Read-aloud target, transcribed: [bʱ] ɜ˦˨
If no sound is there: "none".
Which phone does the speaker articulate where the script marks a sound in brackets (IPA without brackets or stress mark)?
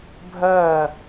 bʱ